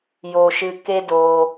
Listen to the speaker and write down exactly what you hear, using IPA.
j oː˧ ʃ ɨː˧ k e˦ d oː˧

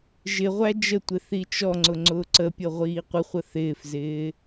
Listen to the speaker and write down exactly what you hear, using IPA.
ʒ ɪ ʁʷ æ d͡ʒ ə tʷ ɪ θ i t͡ʃ ɔ ŋ͡ǀ ʊ ŋ͡ǀ ʊː ǀ ə pʲ ɤ ʁʷ iː qʷ ɪ χʷ ə θ ɪː f z ɪː

